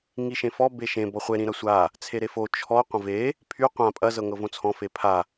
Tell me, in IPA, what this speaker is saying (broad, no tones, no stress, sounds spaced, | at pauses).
ŋ i ʃ ẽ f ɔ b e ʃ ẽ b ɔ χʷ e ɾ ĩ ɾ ɐ sʷ a | t͡sʰ e ɾ e f o t͡ʃʰ ɔ qʷ ɐ̃ v e | pʰ y qʷ ã pʼ ɐ z ɤ ŋ ɤ v õ t͡sʰ ɔ̃ f e pʰ a